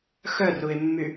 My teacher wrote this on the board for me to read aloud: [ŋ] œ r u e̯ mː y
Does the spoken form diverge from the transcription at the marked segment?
yes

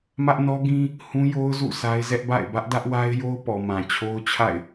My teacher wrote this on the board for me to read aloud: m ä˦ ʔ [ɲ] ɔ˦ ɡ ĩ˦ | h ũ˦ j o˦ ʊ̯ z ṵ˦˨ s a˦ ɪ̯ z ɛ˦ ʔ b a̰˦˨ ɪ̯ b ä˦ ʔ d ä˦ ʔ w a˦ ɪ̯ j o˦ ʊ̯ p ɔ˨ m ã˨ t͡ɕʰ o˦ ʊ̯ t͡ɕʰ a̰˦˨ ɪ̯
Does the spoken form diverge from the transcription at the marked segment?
yes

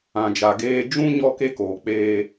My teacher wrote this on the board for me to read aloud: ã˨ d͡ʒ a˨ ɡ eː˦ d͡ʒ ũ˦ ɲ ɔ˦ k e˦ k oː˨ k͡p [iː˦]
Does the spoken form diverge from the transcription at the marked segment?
yes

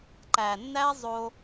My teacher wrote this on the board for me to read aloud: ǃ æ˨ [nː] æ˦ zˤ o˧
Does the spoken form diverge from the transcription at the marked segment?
no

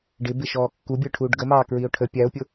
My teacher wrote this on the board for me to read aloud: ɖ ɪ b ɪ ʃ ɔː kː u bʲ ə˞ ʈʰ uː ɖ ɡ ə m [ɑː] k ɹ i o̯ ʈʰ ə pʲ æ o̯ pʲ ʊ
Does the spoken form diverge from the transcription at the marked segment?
no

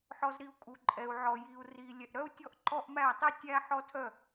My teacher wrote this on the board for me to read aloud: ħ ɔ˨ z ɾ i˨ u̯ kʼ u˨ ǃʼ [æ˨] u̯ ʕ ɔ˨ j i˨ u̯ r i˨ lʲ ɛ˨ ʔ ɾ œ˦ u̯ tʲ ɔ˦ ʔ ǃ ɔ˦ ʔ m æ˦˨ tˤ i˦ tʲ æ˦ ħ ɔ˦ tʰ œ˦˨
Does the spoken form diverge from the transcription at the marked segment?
yes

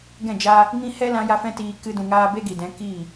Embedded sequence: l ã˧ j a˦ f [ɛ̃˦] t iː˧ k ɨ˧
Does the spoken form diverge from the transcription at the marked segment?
no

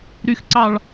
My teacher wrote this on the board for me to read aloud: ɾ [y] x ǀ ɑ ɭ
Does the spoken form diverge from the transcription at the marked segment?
no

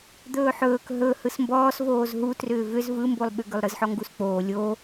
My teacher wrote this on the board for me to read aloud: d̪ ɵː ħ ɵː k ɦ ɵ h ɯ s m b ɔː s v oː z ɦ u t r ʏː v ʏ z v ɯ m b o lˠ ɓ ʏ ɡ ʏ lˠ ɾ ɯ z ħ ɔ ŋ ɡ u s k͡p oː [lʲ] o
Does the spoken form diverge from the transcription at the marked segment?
no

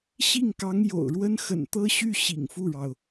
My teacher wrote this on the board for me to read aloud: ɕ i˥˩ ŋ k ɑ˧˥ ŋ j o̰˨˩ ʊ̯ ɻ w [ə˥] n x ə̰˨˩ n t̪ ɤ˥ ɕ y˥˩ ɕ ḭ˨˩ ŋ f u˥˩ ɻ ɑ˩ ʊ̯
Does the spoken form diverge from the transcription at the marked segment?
no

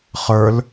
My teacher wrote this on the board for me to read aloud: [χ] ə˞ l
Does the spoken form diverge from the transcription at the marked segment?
no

